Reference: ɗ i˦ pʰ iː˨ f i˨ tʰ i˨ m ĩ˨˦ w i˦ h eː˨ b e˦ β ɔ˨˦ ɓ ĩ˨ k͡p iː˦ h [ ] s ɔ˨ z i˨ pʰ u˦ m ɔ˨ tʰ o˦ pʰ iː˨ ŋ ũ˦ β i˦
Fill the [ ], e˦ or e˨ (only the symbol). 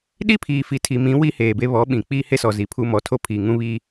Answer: e˦